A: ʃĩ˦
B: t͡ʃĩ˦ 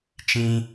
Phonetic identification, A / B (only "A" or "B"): B